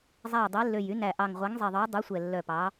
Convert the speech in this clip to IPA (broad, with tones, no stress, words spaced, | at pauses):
zˤæ˨˩j dˤe˨˦lːø˨˩jy˨˦næ˨˩ ʔɑ˨˩ŋʁʷæ˨˦ŋzˤi˨˩ðˤœ˨˦j dˤʉ˨˦sʷɛ˨˩lːœ˨˩ pɑ˨˦